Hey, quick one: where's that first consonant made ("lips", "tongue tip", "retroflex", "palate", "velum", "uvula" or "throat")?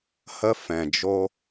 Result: throat